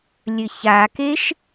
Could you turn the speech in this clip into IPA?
lʲ ɘ ç a k e ʃ

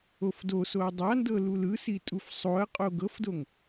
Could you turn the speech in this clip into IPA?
o f d o s o ɐ̯ dˤ a n d ɤ l u l ɯ s i tʼ u f sˤ o ɐ̯ qʼ o ɡ ɤ f d o ŋ

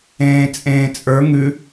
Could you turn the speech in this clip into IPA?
ẽː t͡sʼ ẽː t͡sʼ ə˞ ŋ ʉ

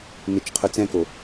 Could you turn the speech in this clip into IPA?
n ɪ t͡ʃ qʰ ʊ t͡s ɛ̃ k o

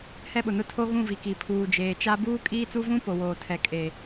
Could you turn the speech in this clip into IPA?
h ɛ˦ ɓ ʊ˨ n ʊ˦ tʰ o˦ ɣ ũ˦˨ v i˨ k i˨ pʰ uː˨ d͡ʒ eː˨ t͡ʃ a˦ b uː˦ kʼ iː˦ t͡s u˦ v ũ˦ p o˨ w oː˨ tʰ ɛ˨ kʼ e˨

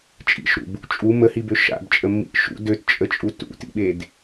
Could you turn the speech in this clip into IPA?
t͡ʃʼ ḭ ʃ ɾ ṵ b | t͡ʃʼ u m ə h i b ø ʃ a̰ b t͡ʃʼ ə mː ḭ ʔ ʃ ṵ d ø t t͡ʃʼ ə t͡ʃʼ u t ṵ t ḭ ɓ e d

